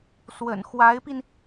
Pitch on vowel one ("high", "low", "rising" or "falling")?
low